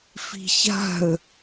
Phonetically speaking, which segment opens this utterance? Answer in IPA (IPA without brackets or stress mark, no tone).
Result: f